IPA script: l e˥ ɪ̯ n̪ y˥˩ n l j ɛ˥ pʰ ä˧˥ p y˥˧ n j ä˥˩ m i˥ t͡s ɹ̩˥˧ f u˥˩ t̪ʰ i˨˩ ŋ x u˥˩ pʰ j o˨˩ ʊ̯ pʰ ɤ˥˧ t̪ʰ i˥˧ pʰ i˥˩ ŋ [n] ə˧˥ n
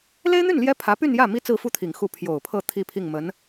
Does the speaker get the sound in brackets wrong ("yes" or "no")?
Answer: yes